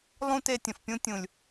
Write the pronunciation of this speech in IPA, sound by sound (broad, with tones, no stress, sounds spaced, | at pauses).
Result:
lˠ ũ˦ t e˧ tʲ ə̃˨ f pʲ ũ˦ tʲ ũ˨ lʲ